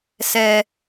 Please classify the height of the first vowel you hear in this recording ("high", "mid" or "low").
mid